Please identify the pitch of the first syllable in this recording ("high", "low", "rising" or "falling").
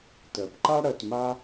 low